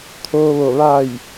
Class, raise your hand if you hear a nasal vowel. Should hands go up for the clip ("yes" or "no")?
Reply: no